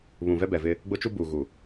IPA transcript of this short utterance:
β ũ˨ v ɛ˦ b ɛ˨ v ɪ˦ | ɡ͡b ʊ˦ t͡ʃ u˦ b uː˨ ɣ u˨

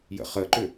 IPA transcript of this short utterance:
j ə̰ χ ə ǃ ʏ

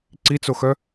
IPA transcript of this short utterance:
ǀ i t͡s o x œ

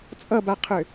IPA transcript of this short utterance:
t͡sʼ ʌ b a qʰ ø

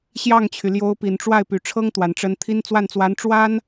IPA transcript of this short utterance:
ɕ j ɑ˥˩ ŋ t͡ɕʰ y˩ l j o˧˥ ʊ̯ p i˨˩ n ʈ͡ʂ w a˥˩ ɪ̯ p y˨˩ ʈ͡ʂʰ ɤ˥ ŋ t̪ w a˨˩ n ʈ͡ʂ ə˧˥ n t̪ʰ i˥ n t͡s w a˥˩ n t͡s w a˧˥ n ʈ͡ʂ w a˥ n

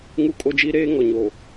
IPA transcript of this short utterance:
ŋ u˦ kʼ o˦ d͡ʒ i˦ ɾ eː˦ ŋ ɔ˨ ɲ o˨

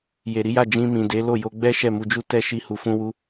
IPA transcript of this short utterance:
j e˨ ɾ i˨˦ j a˦˨ d͡ʒ ĩ˧ m ĩ˨ d e˨˦ l o˦˨ j o˧ ɡ͡b ɛ˦ ʃ ɛ˦˨ m u˧ d͡ʒ u˦ t ɛ˦ ʃ i˧ h u˨ f ũ˧ w u˧

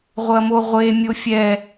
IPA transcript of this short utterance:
ʁʷ ɐ m o ʁʷ e mʲ o fʲ ɛ

